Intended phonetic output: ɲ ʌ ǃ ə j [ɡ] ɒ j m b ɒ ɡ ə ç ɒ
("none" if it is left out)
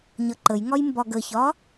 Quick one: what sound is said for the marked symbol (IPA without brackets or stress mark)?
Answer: ŋ